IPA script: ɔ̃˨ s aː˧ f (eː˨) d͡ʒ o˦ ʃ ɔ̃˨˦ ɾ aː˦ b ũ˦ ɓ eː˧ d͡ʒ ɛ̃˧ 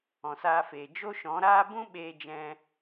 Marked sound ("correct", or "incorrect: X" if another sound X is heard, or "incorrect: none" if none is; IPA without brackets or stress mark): correct